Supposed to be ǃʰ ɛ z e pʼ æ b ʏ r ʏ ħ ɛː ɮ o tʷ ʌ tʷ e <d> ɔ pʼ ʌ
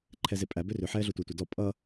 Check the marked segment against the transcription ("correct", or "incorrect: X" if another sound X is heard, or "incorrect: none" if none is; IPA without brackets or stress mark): correct